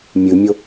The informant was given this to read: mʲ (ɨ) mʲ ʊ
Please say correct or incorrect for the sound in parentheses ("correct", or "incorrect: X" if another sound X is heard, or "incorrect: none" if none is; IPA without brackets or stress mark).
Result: correct